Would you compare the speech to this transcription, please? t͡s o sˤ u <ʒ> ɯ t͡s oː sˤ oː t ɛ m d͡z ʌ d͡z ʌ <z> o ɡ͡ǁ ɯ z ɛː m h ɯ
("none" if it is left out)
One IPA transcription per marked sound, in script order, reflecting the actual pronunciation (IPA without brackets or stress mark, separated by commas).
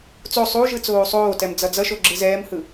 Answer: ʒ, ʃ